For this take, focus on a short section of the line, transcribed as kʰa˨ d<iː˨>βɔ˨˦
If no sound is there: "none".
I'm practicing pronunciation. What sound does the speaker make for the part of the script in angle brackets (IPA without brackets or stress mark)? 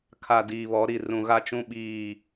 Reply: iː˨